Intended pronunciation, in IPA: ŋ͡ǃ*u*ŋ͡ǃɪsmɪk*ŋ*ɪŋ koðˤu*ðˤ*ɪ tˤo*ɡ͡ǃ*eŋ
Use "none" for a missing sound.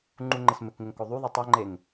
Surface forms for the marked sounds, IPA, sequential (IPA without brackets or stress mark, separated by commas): u, ŋ, ðˤ, ŋ͡ǃ